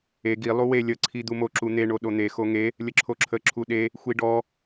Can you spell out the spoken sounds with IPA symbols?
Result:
e ɡ i lˠ u w e lʲ ə ǀʰ i d̪ u m o ǁ u n̪ e ɳ o ɗ o n̪ e x o ŋ e | lʲ ə ǁʰ o ǁʰ ə ǁʰ u ɗ e | xʷ i ɖ ɔ

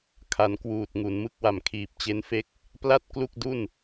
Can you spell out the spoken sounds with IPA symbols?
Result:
kʰ a˨˩ n k w uː˨˩ t̚ ŋ u˩˦ n m ɯ˦˥ k̚ w a˨˩ m kʰ iː˨˩ p̚ t͡ɕ e˦˥ n f e˥˩ k̚ | p l a˥˩ t̚ k l u˥˩ k̚ d u˥˩ n

